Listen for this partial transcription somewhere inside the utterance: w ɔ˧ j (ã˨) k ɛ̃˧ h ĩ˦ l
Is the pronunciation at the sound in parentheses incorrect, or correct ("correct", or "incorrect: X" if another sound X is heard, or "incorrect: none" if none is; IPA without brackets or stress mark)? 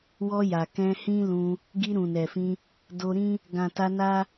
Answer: incorrect: a˨